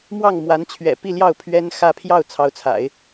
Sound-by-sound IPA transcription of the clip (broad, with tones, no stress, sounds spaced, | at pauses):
m w ɑ˥˩ ŋ m w a˧˥ n t͡ɕʰ ɥ ɛ̰˨˩ p i˥˧ l j ɑ˥˩ ʊ̯ pʰ ɥ ɛ˥ n x ä˥˧ pʰ j ɑ˥˩ ʊ̯ t͡sʰ ɑ˧˥ ʊ̯ t͡sʰ a̰˨˩˦ ɪ̯